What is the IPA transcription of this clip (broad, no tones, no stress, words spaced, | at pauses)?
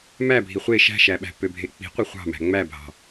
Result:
mæ bʱiχʷe ʃæ̤ʃæɓæ̤ pøbʱek͡pi̤qʷe χʷɑ̤mæ̤ ŋ͡mæbʱɑ̤